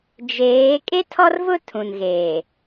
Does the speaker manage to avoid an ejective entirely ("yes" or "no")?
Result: no